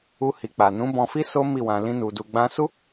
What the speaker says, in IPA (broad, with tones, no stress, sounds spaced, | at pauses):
u˧ h i˨ k͡p a˨ n ũ˨˦ b ɔ̃˧ f i˦ s o˦ m i˦˨ w ã˧ l ĩ˦ n u˧ d u˧ ɡ͡b ã˦ s u˦